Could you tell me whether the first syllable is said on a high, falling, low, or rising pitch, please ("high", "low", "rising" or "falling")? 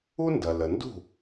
high